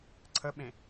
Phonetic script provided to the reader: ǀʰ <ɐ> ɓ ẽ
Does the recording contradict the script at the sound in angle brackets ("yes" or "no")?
yes